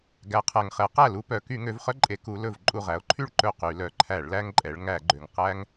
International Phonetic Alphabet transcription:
ɡæ˩˧qʰæ˩ŋχɛ˩˧ qæ˥˩lu˦pœ˩˧ ky˧˩˧ŋø˩˧vχœ˦ǃʼe˩˧ ku˩˧lɵ˧˩v ǃʼu˧˩ʁæ˩˧o̯ǃʰy˥˩ɭ ǃɵ˥˩qy˧˩˧lœ˩˧ ǃʰæ˧˩˧ɭlæ˦ŋǃʼɛ˩˧ɭ ŋæ˧˩˧ɡ͡ǃø˩ŋ qæ˦ŋ

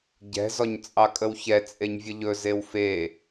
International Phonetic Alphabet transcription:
ɟɛ̤ zɔɲt͡sʼɑkʼəwçɛ t͡sʼeɲvʲəʎɵ zewfe

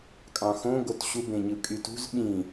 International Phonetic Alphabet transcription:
kʼɑ̃xõ ɡotɕu bẽɲɯkʼytṳz ɓĩ

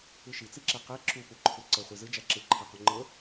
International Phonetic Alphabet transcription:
ɯʃit͡siǁɛ qɛ ǁupuǃʰɯ ǀə χʷizɯ d͡ʒaǁɯǃʰɛqo ŋ͡ǃɤ

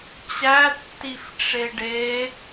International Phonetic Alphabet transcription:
t͡ɕætːif ʈ͡ʂeɖe

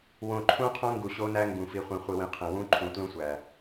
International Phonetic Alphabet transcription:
wõ˨ǃʰũ˦qʰõ˦ ŋɡu˨ɕo˦næ˦ ŋɡũ˨ fi˨ χʷĩ˨χʷi˨wĩ˨ qʰẽ˨ wũ˦ǃʰũ˨tlũ˦ sʷæ˨

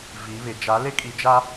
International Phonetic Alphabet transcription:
vi˨˦ βɪ˨ d͡ʒa˨˦lɪ˦kʼi˨d͡ʒa˦

